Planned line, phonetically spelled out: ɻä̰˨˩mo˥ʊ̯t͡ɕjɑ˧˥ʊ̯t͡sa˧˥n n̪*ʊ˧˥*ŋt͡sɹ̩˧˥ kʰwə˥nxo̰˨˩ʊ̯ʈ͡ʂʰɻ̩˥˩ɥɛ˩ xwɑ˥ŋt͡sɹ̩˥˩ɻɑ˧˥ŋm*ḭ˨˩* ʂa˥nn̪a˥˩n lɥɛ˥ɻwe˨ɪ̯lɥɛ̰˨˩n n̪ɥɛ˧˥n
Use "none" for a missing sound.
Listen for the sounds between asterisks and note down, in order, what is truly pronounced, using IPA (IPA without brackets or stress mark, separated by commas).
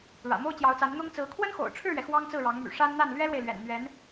ʊ˥, y̰˨˩